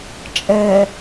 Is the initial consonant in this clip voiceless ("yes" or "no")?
yes